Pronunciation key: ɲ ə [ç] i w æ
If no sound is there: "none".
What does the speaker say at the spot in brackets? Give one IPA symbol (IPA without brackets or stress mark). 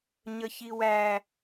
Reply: ç